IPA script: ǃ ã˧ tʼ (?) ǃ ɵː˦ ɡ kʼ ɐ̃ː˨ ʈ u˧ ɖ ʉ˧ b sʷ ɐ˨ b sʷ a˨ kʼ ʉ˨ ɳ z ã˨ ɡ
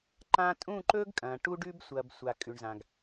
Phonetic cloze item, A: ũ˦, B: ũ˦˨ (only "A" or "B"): B